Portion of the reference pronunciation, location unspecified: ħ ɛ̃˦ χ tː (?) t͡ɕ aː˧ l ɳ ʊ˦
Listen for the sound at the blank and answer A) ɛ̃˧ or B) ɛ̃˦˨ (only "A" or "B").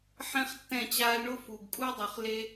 B